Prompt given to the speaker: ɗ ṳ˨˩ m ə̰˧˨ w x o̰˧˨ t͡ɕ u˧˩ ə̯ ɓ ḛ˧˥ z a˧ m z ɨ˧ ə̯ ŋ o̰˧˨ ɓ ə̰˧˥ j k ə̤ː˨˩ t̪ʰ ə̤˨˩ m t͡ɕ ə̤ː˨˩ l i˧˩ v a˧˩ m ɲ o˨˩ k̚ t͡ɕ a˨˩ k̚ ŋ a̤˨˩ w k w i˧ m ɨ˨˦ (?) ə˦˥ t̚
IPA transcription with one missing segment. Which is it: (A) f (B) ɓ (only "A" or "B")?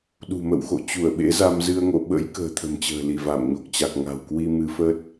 A